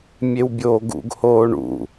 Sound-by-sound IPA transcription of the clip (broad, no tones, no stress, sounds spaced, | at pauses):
mʲ e w bʲ oː ɡ ṵ ɡ h oː ɳ ṵ